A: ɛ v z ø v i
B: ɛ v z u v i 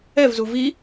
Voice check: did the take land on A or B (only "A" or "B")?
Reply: B